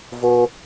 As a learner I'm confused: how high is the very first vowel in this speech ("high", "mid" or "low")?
mid